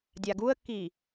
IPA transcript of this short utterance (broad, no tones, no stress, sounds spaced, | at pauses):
dʲ a ɡ u ə̯ kː i